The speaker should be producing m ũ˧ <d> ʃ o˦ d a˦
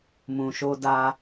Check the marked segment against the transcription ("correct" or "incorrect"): incorrect